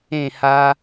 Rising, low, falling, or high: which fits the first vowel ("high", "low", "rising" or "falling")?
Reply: falling